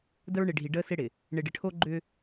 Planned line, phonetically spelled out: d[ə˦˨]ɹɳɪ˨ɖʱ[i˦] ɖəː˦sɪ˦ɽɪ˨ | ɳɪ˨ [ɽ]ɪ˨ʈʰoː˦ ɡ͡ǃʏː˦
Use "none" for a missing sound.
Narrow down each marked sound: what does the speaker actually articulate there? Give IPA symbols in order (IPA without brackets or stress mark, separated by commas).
ə˦, i˨, ɖ